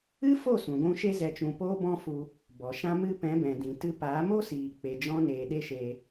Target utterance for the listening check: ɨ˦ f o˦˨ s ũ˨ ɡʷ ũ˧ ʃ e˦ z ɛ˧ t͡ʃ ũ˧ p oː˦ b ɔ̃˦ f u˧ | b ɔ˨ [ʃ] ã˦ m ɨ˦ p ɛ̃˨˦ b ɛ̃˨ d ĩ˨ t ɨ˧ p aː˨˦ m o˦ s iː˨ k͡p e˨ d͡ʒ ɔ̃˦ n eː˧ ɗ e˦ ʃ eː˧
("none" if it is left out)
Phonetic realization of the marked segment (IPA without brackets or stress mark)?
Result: ʃ